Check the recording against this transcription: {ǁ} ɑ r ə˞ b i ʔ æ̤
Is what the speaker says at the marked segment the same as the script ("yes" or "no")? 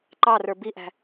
no